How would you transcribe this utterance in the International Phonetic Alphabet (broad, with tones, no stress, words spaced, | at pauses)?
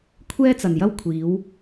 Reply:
kʷʰɛː˥t͡sɐ˨njɐ˥w kʷʰiː˨˧w